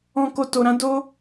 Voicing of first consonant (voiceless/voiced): voiceless